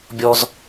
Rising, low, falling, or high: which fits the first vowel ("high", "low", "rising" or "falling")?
high